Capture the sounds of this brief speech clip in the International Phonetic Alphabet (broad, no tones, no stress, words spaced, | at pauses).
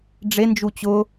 ɖ͡ʐend͡ʒu t͡ɕʊ